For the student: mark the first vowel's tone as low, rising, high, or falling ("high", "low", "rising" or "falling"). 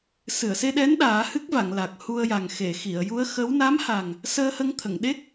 low